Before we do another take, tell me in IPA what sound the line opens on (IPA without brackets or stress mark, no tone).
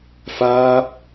f